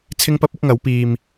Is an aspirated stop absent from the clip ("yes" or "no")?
no